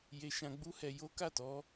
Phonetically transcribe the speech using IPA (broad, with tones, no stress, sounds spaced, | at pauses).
j e˧ ʃ ã˧ ɡ͡b u˦ h ɛ˧ j o˦ k a˦˨ t ɔ˧